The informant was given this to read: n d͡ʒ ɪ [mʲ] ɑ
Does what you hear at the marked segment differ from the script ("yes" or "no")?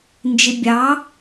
yes